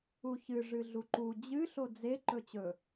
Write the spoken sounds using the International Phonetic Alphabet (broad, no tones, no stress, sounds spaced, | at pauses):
u ç ɨ ʐ ɨ ɮ u ǃ u d͡ʑ ɨ ɬ o d͡z e ǃ ɵ t͡ɕ ɵ